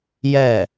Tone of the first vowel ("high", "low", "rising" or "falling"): falling